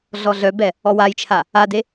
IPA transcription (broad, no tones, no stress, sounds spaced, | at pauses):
ɮ ɔ ɮ œ b ɛ | ɔ w a j t͡ʃʰ a | a d e